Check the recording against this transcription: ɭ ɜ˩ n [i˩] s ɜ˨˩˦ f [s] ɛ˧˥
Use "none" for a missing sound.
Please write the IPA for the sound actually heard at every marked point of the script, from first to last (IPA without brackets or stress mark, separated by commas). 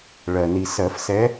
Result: i˩, s